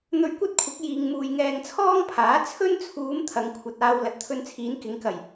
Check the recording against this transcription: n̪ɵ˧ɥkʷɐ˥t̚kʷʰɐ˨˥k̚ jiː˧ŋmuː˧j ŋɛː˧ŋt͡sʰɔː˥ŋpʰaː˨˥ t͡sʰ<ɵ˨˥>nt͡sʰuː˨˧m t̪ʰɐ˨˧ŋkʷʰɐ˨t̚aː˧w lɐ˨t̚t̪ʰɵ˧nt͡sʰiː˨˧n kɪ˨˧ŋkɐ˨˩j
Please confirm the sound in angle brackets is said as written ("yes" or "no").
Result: no